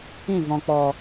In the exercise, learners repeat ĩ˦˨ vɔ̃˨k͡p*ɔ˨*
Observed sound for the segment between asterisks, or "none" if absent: ɔ˨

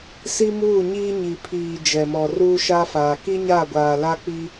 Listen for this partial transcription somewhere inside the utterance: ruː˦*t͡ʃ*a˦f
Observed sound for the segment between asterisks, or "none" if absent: ʃ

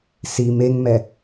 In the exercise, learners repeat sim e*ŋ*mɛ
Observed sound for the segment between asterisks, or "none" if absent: ŋ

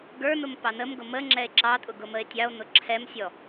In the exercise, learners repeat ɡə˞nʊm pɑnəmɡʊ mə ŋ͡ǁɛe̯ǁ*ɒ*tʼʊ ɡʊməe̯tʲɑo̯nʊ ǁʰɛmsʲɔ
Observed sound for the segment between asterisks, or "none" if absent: ɑ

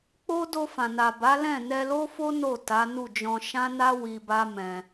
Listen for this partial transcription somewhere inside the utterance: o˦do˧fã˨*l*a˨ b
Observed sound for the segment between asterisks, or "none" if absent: n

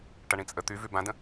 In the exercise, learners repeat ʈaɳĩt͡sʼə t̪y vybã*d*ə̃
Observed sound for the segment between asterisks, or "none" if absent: d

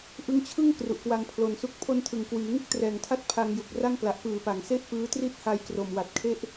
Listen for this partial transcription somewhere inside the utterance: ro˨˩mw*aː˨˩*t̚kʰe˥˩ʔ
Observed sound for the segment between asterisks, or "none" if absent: a˨˩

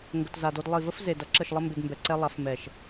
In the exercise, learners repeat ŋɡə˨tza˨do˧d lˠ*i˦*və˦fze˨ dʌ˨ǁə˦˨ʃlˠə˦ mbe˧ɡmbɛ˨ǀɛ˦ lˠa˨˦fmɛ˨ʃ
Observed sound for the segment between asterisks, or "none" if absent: i˨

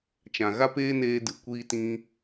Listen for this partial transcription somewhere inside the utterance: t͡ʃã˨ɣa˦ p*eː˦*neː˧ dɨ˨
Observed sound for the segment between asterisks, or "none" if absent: eː˦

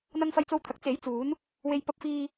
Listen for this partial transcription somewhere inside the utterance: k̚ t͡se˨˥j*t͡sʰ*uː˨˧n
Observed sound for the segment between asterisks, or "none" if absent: t͡s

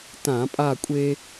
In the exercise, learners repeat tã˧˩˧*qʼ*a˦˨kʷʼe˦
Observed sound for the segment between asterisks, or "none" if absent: pʼ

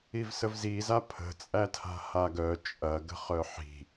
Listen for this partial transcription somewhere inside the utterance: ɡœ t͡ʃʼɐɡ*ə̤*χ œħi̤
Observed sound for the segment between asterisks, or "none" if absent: ə̤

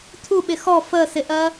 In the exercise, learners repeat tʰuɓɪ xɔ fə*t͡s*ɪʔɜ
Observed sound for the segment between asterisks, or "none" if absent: s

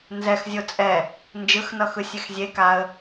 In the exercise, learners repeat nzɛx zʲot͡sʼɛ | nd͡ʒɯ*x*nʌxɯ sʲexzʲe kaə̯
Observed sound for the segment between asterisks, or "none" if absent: x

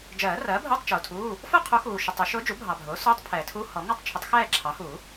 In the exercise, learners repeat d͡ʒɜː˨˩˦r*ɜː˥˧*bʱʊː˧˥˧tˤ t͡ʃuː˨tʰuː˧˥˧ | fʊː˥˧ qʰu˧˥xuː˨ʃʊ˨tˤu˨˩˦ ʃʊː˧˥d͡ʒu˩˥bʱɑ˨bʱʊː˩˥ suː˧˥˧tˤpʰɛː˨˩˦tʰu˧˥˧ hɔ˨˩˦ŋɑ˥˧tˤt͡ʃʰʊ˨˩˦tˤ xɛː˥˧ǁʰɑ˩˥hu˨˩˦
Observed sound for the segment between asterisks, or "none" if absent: ɜː˩˥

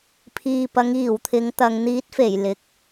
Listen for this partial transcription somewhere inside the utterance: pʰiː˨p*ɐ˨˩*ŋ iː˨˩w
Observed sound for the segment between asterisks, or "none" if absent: ɐ˨˧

